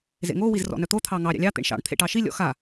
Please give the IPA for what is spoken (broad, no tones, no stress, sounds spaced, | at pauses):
z ḛ ŋ o w i z r ɔ̰ n œ t̪ o t̪ʰ ɑ ŋ ɑ ɾʲ ɑ̰ lʲ ɑ t̪ ḛ ɳ ʃ ɑ̰ ɳ t̪ʰ ḛ ʈ ɑ ʃ i lʲ ɔ̰ x a